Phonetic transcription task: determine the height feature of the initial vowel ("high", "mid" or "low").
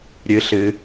high